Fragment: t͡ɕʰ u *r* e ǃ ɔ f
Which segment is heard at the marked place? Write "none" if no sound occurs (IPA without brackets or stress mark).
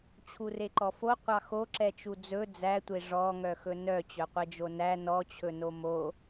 r